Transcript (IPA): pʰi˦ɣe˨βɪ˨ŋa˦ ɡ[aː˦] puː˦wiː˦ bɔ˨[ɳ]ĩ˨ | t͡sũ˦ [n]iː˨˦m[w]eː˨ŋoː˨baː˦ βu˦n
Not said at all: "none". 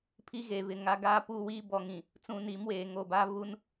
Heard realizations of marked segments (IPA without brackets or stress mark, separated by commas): aː˦, ŋ, n, w